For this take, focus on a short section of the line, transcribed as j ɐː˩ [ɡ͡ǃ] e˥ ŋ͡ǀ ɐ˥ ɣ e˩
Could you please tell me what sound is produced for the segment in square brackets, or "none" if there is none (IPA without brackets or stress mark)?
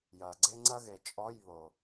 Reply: ɡ͡ǀ